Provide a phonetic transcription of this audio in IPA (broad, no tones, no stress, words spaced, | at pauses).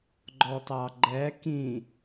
ɡ͡ǃɔtɑɡ͡ǃɛ kĩ